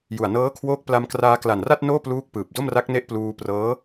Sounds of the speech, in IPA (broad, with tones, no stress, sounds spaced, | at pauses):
j u˨˩ a̯ n ɤː˦˥ kʰ w oː˦˥ k̚ p l a˧ m k r aː˧ k l a˨˩ n r a˥˩ t̚ n oː˥˩ p l uː˦˥ k̚ p ɯː˨˩ p̚ d o˥˩ m r a˦˥ k̚ n e˦˥ ʔ p l uː˧ p r ɤː˦˥